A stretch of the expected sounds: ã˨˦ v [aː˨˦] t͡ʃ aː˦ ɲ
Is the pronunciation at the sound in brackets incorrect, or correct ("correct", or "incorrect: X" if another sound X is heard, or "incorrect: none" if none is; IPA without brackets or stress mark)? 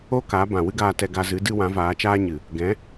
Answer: correct